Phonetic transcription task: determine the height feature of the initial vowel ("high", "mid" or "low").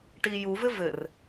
high